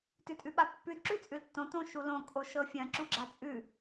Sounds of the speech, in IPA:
t ʉ tʼ ʉ ɓ a pː ʉ d ǁ ʉ t͡sʼ ʉ l tː õ t õ ʃ u l õ kʼ o ʃ ɤ fʲ ɐ̃ ǁ u ɡ͡ǁ a t͡sʼ ʉ

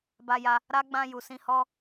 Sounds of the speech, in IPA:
b a˧ j a˧ | ɾ a˦ ɡ͡b ã˧ j u˨ s ĩ˧ h ɔ˦

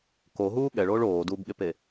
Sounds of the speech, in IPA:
k o ɦ uː ɠ ɛ ɭ oː ɭ oː d uː b ɠ e p e

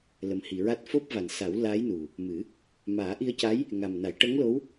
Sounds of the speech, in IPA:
l ə˨˩ m h i˨˩˨ ɹ a˦˥ t̚ f o˦˥ p̚ v a˨˩ n s a˨˩˦ w l aː˧˥ j n u˨˩ | m ɨ˨˩˦ | m aː˨˩˦ ʔ i˧ ə̯ c a˧˥ j | ŋ a˨˩ m n a˨˩˦ j ʈ ə˧˥ ŋ l o˧˥ w

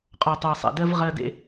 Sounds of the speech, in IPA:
qʼ ɔ˨ tˤ ɤ˨ sˤ ḛ˨ d ɜ˦ v ʁ ɜ˦ d ḛ˦

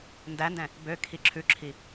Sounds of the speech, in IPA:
n d æ n d ɛ̃ | b ø kʰ i ǁʰ ʉ ǁʰ i

